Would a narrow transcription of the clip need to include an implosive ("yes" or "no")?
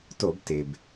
no